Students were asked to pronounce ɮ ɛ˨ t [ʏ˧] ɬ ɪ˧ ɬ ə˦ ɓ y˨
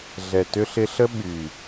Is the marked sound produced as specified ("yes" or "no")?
yes